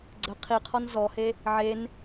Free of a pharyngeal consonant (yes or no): no